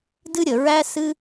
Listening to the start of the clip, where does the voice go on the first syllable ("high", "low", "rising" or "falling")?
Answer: high